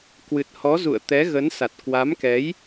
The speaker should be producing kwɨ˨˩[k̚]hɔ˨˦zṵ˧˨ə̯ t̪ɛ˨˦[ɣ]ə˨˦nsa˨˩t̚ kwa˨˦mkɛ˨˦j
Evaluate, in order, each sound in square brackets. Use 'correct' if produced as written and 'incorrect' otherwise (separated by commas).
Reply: incorrect, correct